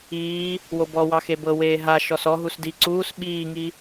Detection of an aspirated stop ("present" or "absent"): absent